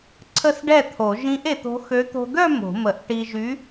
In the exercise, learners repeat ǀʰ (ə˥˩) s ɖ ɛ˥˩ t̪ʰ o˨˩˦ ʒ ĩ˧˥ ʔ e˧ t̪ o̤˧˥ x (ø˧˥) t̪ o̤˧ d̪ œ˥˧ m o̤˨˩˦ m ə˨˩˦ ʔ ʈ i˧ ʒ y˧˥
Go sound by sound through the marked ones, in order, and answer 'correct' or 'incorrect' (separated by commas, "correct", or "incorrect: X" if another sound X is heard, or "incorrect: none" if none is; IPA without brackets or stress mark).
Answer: correct, correct